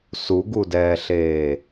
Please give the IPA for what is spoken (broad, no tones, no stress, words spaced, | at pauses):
suɡudɛːɬeː